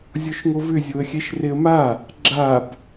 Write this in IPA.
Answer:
zʲ ɔ ʃ ŋ o v ʏ zʲ o ə̯ xʲ ɛ ʃ r e ə̯ m a | ɡ͡ǁ a b

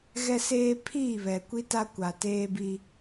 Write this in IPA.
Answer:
ɣ ɛ˦ s eː˦ pʰ iː˦˨ β ɛ˨ kʷ i˦ t a˦ kʷ a˨ t eː˦ b i˦

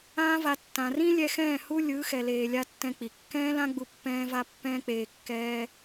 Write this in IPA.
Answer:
ãː˦ v a˧ tː ã˨ r ĩ˦ lʲ ɛ˧ x ɛ̃ː˦˨ h u˦ lʲ ɯ˨˦ x ɛ˨ l eː˨ lʲ a˧ tː ɛ̃˧ k͡p i˨ kː ɛ̃ː˦ l ã˦ ɡ͡b u˧ pː ɛ̃ː˦ v a˦ pː ɛ̃ː˦ k͡p eː˧ kː ɛː˦

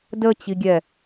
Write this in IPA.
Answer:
d ə t͡ɕ i ɡʲ ɛ

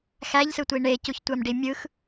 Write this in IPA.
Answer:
x æ ʎ s ɯ tʷ i ɳ e c u ç tʷ æ m ɖ i mʲ ɯ x

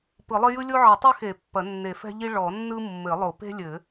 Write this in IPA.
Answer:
p ɯ˨˩˦ lˠ ɘ˥ j ɯ˥ lʲ o˥ ʕ ɘ˨˩˦ tˤ ɘ˥ x e˨˩˦ pː ɐ˨˩˦ nː e˨˩˦ f ɛ̤˥ ʎ i˥ ɭ ɔ˨˩˦ nː ɯ˥ mː ɘ˨˩˦ lˠ o˨˩˦ p e̤˥ lʲ ɘ˨˩˦

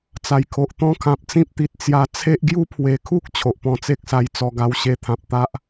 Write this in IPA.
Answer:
t͡s a˨˩ j kʰ o˨ ʔ t̪ ɔ̃˦ kʰ ã˨ p̚ t͡s ĩ˦ p̚ t̪ i˨ t̚ t͡s j a˧ t͡sʰ e˦ ʔ ɡ j u˦ pʰ w e˨˩ kʰ u˦ k̚ t͡ɕʰ o˨ ʔ p ɔ̃˧ t͡s e˦ k̚ s a˧ j t͡s ɔ˧ ɡ a˧ w ɕ e˧ t̪ʰ ã˨ p̚ t̪ a˦ ʔ

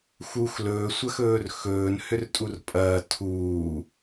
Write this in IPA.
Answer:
x u x l ɵː sʷ ɐ x ɵː r x ɵː n h ʏ r tʼ u r pʼ ɐː tʰ uː

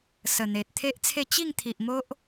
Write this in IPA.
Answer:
s ə˨˩ n̪ e˨ t̚ t̪ʰ e˦ ʔ t͡sʰ e˥˧ t͡ɕ i˥˧ ŋ t̪ʰ i˨ ʔ m o˦ ʔ

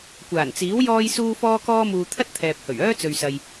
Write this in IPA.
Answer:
kʷ aː˨˩ n t͡s iː˨˥ w j ɔː˧ j s uː˧ f ɔː˧ k ɔː˧ m uː˨ t̪ʰ ɐ˥ t̚ t̪ʰ ɛː˨ p̚ h ɵ˨˩ ɥ œː˥ t͡s ɵ˧ ɥ s ɐ˧ j

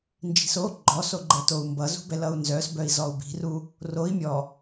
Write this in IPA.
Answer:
n d͡ʒ i̤ s o ɡ͡ǃ ɔ s o ɡ͡ǃ ɛ t o u̯ m b ʌ z ṳ b ɛ l ʌ u̯ n z œ s b œ i̯ z ɔ u̯ b i̤ r u | r o i̯ mʲ ɔ

